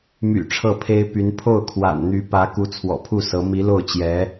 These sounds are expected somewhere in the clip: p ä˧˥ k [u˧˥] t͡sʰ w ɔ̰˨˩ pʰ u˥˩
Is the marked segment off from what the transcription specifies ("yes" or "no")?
no